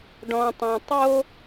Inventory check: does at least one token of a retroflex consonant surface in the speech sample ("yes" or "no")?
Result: yes